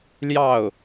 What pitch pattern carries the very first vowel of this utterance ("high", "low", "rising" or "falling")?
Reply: falling